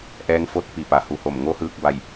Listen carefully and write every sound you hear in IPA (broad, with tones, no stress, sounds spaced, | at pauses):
ʔ ɛː˧˥ ŋ f o˥˨ t̚ p i˧˩ p a˩ h u˧˩ h o˧˩ m ŋ o˧˥ h ɯː˧ k̚ b a˧˩ j